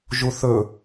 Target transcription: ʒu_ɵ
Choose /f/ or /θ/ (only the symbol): θ